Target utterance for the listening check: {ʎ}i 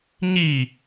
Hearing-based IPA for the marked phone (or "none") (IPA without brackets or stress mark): ɲ